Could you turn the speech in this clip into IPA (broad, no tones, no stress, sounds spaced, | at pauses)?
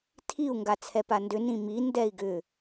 tʰ i u̯ ŋ ɡ a t͡sʰ ɛ p a n d ʏ n ĩ m i n d ɛ i̯ ɡ ʏ